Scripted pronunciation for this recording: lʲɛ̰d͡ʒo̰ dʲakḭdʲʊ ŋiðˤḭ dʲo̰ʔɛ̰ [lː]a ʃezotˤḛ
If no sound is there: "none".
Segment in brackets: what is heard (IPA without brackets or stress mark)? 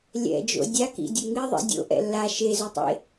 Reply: lː